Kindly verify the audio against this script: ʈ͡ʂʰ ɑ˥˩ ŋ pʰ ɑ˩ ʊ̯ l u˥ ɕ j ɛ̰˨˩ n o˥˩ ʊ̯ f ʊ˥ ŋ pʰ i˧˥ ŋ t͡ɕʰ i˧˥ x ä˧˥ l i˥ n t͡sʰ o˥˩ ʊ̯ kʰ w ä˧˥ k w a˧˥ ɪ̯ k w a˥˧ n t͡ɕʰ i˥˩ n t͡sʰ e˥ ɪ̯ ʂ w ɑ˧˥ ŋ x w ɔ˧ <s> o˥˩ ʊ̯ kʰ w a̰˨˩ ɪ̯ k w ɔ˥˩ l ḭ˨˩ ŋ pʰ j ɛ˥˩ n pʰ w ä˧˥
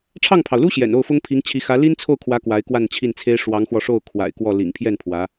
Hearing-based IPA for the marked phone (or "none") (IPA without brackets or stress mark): ʂ